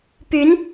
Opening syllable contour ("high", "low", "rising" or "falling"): rising